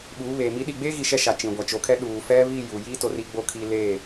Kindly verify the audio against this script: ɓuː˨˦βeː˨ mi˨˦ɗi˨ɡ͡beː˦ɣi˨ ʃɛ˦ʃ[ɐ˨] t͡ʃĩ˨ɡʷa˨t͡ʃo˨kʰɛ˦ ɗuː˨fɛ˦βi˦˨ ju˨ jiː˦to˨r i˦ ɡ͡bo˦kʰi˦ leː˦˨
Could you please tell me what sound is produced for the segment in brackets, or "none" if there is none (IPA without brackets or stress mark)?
a˨